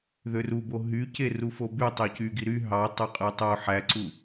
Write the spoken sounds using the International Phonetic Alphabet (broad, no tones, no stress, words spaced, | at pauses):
ðørubo ɦyceru foby tˤøcyɡi ɾy ɦɑ tˤɑqʼɯtˤo ħæǀu